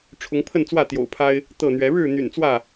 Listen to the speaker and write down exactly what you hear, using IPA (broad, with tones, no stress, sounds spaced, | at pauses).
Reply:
ʈ͡ʂʰ ʊ˨˦ ŋ pʰ ə˥˨ n t͡s w ä˥˨ t̪ j o̰˨˩ ʊ̯ pʰ a˦ ɪ̯ | t̪ ɤ˥˨ n̪ ɥ ɛ˨˦ ɻ ɻ̩˥˨ n̪ y̰˨˩ n t͡s w ä˥˨